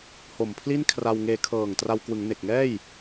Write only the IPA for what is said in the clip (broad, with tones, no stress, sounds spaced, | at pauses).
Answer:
h o˨˩ m pʰ l i˥˩ n kʰ r a˧ w ŋ eː˧ kʰ ɤː˨˩ ŋ t r a˧ w k w ɯ˩˦ ŋ n e˨˩ k̚ ŋ ɛː˥˩ j